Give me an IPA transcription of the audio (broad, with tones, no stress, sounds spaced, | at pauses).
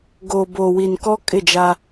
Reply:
ɡ oː˨ b oː˨ w i˨ n k ɔ˦ kʼ ɪ˦˨ d͡ʒ a˦